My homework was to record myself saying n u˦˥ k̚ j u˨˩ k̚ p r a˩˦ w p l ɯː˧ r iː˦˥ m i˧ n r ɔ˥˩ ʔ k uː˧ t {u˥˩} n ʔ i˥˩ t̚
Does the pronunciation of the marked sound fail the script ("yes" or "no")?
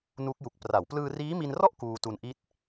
yes